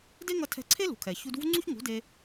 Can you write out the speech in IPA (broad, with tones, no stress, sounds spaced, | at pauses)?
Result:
d e˦ ŋ ʌ˧ tʰ ɛ̤˧ ǀʰ e˦ l ṳ˨˦ kʰ ɛ˨ ç u˧ d v ṳ˦ ŋ͡ǀ u˦ ç ŋ ṳ˨˦ d e˧